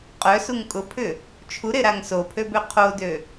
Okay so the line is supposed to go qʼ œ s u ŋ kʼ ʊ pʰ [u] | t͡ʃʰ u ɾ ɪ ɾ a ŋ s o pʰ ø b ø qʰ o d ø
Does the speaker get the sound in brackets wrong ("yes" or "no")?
yes